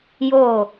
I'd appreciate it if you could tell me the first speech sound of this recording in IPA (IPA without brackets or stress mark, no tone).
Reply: j